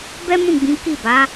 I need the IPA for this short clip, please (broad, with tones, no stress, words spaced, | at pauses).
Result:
bɛ˦mũ˦˨ɡ͡bĩ˨˦ ki˦˨ba˨˦